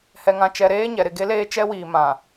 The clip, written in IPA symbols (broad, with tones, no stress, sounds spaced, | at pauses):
h ɛ˨ ŋ ã˨ t͡ʃ ɛ˨ ɾ eː˦ ɲ ɛ˨ ɾ ɪ˨ ɡ e˦ l eː˦ t͡ʃ ɛ˦ w iː˨ m ã˨